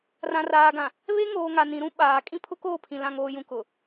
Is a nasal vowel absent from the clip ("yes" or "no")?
no